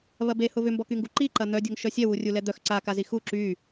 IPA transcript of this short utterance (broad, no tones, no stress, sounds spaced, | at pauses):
β ɐ b e h ʊ β ʏ m b ɔ k y ŋ ɡ u ǃ i ǃ ɐ n̪ œ dʲ o ŋ ʃ œ sʲ ɛ w u rʲ u l ɛ d̪ œ x ǀ a k a z i x u ǁ y